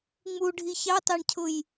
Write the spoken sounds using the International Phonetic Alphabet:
ŋ͡m u ɖʱ i ç ɑ t ɑ ɳ cʰ ʊ j

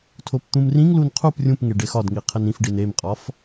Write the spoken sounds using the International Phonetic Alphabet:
tʰ o p t̪ ũ m r ĩ ŋ l u n qʰ u p rʲ ũ p ŋ e ɖ e x ɒ d ŋ i qʰ e n ĩ f ɖ i n e m qʼ ɒ f

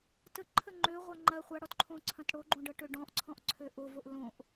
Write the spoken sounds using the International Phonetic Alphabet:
t ə ǃʰ ə ŋ͡ǃ ø ʁʷ a ŋ͡ǃ ɐ χʷ a ɽ ɔ t ǃʰ õ ǀʰ ɐ̃ t ɽ o ɡ͡ǃ õ ɖ ɤ ʈ ø ɖ ɔ̃ ʔ ǀʰ ɔ̃ ʔ ǀʰ ø ʔ o v o ʔ l õ ʔ

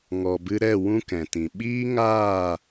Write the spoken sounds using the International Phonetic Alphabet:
ŋ ɔ˨ b ɨ˧ ɾ ɛ˦˨ w ũ˦ k ɛ̃˨ t ĩ˨ ɓ iː˦ ŋ aː˦˨

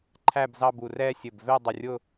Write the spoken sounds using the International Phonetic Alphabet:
ǃʰ æ˥˧ b z ɑ˥˧ b u˧˩ r ɛ˥˧ sʲ ɘ˧˩ b v ɛ˥˧ dˤ ə˧˩ rʲ ʊ˥˧

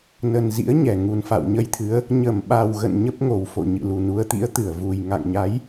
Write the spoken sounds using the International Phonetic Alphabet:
n ə˨˩ n z ḭ˧˥ ə̯ ɲ ɛ˧˩ ŋ u˨˩ n f a̰˧˨ w ɲ ə˧ j t̪ʰ ɨ˨˦ ə̯ | ɲ ə˧˩ m ɓ a˨˩ w ɣ ə̰˧˨ n ɲ ə˦˥ p̚ ŋ o˧˩ w f o̰˧˨ ɲ ɨ̰˧˨ l u˨˩ n u˨˦ ə̯ t̪ ḭ˧˥ ə̯ t̪ ɨ˧˩ ə̯ v u˨˩ j ŋ a̰˧˨ ŋ ɲ a˨˦ j

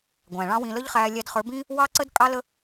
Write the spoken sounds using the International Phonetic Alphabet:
ɡʷ æ̃˨ ɭ ɑ̃˦ w ĩ˧ l ə˦ ʎ χ æː˧ lʲ æ˧ d χ ə˞˨˦ b ĩː˦ | w ɑ˦ ǀ ə˦ d kʼ ɑ˦ l ə˦

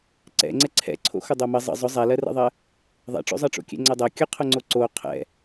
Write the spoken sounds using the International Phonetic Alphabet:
ǀ ɛ̰ ŋ͡ǀ ɛ ǀʰ ɛ̰ ǀʰ o̰ x ʊ dˤ o m ə zˤ ə̰ zˤ ʊ zˤ ɛ l ɜ r ɛ̰ ðˤ ɜ | ðˤ ɛ̰ ʈ͡ʂ o̰ zˤ ɜ ʈ͡ʂ o̰ kʲ ɛ̰ ŋ͡ǀ ɛ dˤ ɜ kʲ ə qʰ ʊ ŋ͡ǀ o ǀ o qʰ ɛ̰

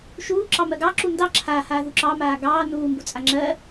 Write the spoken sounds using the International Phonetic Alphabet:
ʃ uː ǁ ɑ m ɜ ɡ ɑ ǁ u n d ɑ ǁʰ aː h aː ð u ǁ ɑ m aː ɡ ɑː n uː m b u t͡sʼ a ŋ͡ǁ ɜ

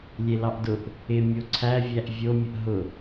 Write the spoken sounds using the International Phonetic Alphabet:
lʲ e l ɑ ʔ d ʊ ʔ | ɪ mʲ o ǀʰ æ vʲ æ ʔ vʲ o mʲ ə ʔ ɦ ʊ

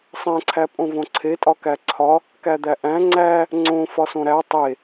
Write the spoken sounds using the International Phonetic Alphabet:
sˤ æ̃ ǀʰ æ pʼ õ v õ ǀʰ e tʼ ɒ k æ ǀʰ ɒ | k æ d̪ æ ʔ æ̃ ŋ͡ǀ æ | ŋ͡ǀ õ f ɒ s õ ɾ æ tˤ e

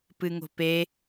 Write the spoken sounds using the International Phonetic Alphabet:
p ɨ ŋ o̤ p e

